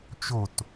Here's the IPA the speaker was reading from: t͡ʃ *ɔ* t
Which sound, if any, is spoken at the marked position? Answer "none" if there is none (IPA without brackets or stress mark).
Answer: o